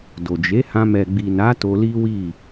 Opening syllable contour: low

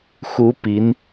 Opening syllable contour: rising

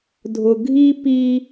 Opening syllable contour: low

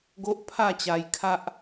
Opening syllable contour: high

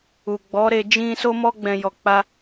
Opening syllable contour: low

